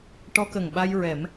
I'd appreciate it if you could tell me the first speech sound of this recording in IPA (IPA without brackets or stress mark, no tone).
ʈ